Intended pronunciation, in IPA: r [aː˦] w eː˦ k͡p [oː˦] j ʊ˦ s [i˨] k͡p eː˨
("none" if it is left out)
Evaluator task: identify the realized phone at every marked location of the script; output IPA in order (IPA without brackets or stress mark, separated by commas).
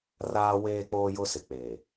aː˦, oː˦, ɪ˨